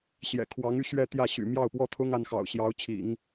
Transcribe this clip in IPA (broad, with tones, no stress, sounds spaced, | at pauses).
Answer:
ɕ j ɛ̰˨˩ kʰ w ɑ˧˥ ŋ y˥˧ ɕ ɥ ɛ˥˧ t̪ j ä˥˩ ɕ y̰˨˩ m j ɑ˥˩ ʊ̯ p w ɔ˥ t̪ʰ ʊ˥ ŋ a˧˥ n x ɑ̰˨˩ ʊ̯ ɕ j ɑ˧˥ ʊ̯ t͡ɕʰ ḭ˨˩˦ ŋ